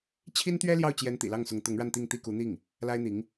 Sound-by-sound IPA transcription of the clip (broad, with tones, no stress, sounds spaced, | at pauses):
t͡ɕʰ i˥ n t̪ ɥ ɛ˥ l j ɑ˥˩ ʊ̯ t͡ɕ j ɛ˧˥ n t̪ ḭ˨˩ l ɑ˥˩ ŋ s ʊ˧˥ ŋ t̪ ʊ˧˥ ŋ ɻ a˥˧ n t̪ i˥˧ ŋ t̪ i˥˩ k u˧˥ n̪ i˥˩ ŋ | l a˥ ɪ̯ n̪ i˧˥ ŋ